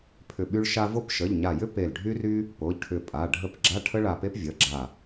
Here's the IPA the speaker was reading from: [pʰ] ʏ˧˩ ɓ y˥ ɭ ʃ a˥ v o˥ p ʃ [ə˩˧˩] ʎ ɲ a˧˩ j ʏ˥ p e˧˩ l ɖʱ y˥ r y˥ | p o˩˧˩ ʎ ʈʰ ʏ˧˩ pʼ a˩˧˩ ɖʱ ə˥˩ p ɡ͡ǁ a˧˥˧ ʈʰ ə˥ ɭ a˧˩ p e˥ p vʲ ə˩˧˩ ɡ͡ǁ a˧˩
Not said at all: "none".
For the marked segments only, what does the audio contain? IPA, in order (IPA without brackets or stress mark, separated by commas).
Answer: pʰ, ə˩˧˩